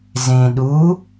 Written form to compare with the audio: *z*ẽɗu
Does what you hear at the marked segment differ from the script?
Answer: no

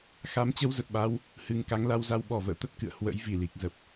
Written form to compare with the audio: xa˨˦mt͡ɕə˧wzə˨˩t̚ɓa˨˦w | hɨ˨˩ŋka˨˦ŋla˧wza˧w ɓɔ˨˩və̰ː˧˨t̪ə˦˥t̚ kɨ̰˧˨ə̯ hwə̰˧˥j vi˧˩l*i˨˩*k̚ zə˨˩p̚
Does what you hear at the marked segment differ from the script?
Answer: no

